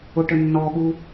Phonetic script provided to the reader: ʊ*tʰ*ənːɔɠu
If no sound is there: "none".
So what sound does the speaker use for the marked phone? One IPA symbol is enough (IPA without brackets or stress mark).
ʈ